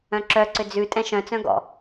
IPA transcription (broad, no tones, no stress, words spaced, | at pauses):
œ̃ǁœǀʏ d͡zʉ tʼɛ̃ʃœ̃t͡sœ̃ ɡɔ̰